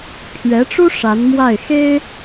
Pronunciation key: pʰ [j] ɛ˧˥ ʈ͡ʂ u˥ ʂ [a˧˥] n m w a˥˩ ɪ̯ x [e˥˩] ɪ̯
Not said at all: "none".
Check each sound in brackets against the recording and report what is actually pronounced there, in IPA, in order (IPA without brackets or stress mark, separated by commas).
ɥ, a˧˥, e˥